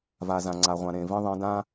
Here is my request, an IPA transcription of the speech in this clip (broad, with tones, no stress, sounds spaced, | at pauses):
v a˨ z ã˨ ŋ͡ǀ a˨ ʁʷ ã˨ ɾ ẽ˨ v ĩ˦ ðˤ ẽ˨˦ d ã˦